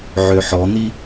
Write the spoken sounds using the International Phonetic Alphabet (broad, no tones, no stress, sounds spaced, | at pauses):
ʕ ø ħ ɔ n̪ i